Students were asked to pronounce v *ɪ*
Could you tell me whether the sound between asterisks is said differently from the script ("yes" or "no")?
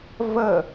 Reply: yes